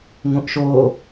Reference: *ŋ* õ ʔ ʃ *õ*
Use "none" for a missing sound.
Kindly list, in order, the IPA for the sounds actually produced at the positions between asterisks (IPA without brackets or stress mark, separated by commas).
ŋ, o